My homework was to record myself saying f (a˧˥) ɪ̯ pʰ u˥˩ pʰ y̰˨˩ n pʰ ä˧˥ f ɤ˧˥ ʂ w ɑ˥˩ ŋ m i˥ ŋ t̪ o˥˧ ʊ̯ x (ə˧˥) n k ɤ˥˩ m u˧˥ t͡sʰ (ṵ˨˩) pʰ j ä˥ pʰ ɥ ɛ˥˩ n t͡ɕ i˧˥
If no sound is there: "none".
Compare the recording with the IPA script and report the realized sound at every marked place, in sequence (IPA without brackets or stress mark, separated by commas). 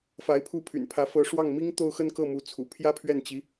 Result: a˧˥, ə˥˧, ṵ˨˩